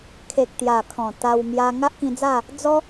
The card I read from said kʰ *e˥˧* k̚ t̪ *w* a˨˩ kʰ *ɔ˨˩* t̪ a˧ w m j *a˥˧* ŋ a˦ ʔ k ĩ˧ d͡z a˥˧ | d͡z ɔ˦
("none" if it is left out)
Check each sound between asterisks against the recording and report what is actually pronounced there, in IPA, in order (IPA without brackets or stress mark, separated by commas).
e˨, j, ɔ̃˨˩, a˧